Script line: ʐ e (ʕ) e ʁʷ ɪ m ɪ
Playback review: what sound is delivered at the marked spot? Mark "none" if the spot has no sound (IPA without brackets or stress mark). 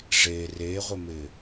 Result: r